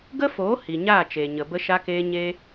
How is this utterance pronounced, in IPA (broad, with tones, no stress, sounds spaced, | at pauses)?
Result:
ɡ ə˦ f oː˨˦ h i˨ ɲ aː˦˨ t͡ʃ eː˨ ɲ ə˨ b ə˧ ʃ a˧ k eː˧ ɲ e˦